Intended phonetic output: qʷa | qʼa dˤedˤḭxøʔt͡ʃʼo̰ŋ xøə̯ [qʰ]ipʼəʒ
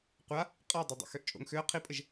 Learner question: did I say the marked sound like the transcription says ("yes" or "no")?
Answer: yes